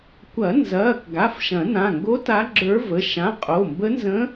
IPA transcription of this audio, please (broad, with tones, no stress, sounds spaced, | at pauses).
kʷ ɐ˨˩˦ n z ɐː˩˧˩ k ɡ a˩˧˩ f ʃ ɐ̃˨˩˦ n ã˩˧˩ ŋ ɡ o˧˥ t a˧˥ ɡ͡ǁ ə˞˧˥ v ə˩˧˩ ʃ ã˩˧˩ qʼ o˩˧˩ m b ə˧˥ n z ə̃˧˥